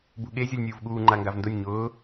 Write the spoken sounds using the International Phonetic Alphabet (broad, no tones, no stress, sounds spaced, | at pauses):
b ṳ ɠ e zʲ ɔ lʲ nʲ uː v ɠ uː ŋ͡ǃ a ŋ ɡ a v n d ʊ nʲ ɲ ʊː